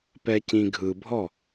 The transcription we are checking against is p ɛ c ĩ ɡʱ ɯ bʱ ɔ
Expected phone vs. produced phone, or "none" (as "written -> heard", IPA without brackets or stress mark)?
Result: none